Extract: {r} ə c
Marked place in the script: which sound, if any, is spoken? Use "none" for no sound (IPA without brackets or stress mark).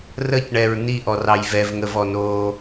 r